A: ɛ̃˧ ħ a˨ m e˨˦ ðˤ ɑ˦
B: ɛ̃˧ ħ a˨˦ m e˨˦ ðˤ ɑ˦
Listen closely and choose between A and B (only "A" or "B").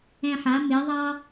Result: B